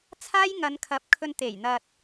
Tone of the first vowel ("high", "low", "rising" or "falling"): high